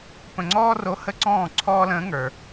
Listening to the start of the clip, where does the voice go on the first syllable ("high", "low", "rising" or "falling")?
low